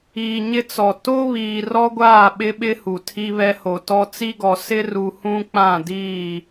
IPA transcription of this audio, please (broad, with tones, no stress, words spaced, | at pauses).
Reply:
iː˨ɲɪ˦t͡sɔ˨ to˦ βiː˨rɔ˦ɡʷaː˦˨ ɓɪ˦ɓɪ˦ hu˨tʰi˦βɛ˦ho˨ tɔ˨ t͡si˦ɡɔ˨ sɪ˦ru˨ hũ˦k͡pã˦˨diː˦˨